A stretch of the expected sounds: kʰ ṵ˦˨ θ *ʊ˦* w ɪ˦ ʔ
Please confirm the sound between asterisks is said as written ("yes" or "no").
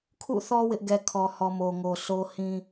no